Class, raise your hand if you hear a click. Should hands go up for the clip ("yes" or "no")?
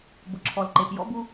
yes